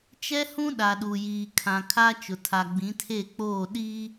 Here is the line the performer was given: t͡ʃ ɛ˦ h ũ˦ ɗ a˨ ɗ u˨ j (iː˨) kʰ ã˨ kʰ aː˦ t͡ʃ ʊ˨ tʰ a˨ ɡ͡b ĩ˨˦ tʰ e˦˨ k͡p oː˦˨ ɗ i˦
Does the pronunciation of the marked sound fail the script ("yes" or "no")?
no